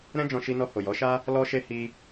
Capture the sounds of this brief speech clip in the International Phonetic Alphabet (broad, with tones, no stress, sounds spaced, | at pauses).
ɾ ɛ̃˦ d͡ʒ ɔ̃˧ ʃ i˧ n ɔ˧ h o˨ j ɔ˨˦ ʃ a˦ | l ɔ˧ ʃ e˧ h i˧